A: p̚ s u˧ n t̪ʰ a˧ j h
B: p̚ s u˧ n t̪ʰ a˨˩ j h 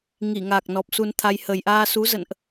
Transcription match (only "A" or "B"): A